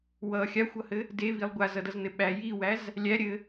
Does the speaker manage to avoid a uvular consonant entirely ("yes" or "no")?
yes